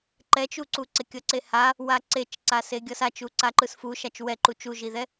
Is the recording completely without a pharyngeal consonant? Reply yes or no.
yes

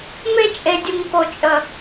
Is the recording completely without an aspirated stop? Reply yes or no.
yes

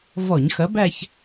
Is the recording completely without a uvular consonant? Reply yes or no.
yes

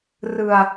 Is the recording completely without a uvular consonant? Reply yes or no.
yes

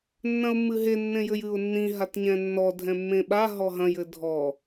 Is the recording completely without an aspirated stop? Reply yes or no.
yes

